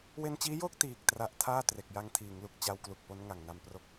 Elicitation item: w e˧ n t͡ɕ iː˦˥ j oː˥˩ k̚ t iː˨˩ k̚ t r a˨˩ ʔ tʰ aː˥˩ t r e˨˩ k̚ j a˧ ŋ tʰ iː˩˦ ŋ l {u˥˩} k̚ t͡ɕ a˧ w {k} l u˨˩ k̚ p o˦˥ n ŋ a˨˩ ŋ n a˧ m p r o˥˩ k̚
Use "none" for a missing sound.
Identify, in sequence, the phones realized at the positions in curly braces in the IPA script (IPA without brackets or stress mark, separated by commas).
u˨˩, k